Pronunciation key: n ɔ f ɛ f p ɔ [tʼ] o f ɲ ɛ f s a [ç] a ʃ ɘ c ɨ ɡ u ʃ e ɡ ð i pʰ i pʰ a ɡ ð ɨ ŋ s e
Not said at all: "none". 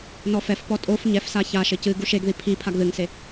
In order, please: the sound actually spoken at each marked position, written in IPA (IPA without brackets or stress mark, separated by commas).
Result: tʼ, ç